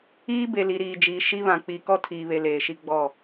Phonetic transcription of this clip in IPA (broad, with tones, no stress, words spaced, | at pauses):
iː˦ be˨ li˨ɾiː˨d͡ʒiː˨ ʃi˦βã˨ k͡pi˨ kɔ˦tʰiː˨βe˨ leː˨ʃi˦ ɡ͡bɔ˦˨